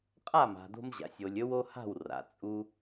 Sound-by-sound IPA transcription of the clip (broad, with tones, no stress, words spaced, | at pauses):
qʼa˥˩ma̤˩do̤˧mʑa̰˩sʲ o˩lʲɵ˧wo˧ ha̤˥˩wra̰˩ t͡sʼu˧